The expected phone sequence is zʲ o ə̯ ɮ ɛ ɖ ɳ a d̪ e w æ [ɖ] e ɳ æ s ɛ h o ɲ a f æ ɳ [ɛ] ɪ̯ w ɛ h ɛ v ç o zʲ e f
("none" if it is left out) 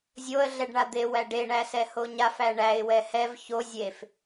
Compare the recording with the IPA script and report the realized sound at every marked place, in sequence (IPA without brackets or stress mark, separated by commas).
ɖ, æ